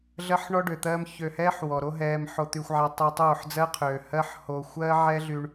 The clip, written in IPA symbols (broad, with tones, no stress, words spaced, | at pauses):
ɮɜ˦ħ ɳɔ˦ ɖø˨t̪ɜː˦m çø˧hɛː˦ħ wɔ˨ɾo˦ɦɛː˧m ħo˧t̪y˧xʷʕa˧ tˤɛ˦ tˤoː˦˨ħd͡zɜ˦qʰøː˨ hɜ˦ħ hoː˧xʷɜː˦ ʕɛ˦ɮy˧ɳ